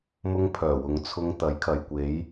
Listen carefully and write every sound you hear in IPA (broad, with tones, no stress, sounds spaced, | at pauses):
m ʊ˥ ŋ pʰ œː˨˩ w ʊ˨˧ ŋ t͡sʰ ʊ˧ ŋ t̪ ɐ˨˥ j kʰ ɐ˨ j kʷ e˨˥ j